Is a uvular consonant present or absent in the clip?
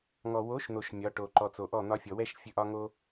absent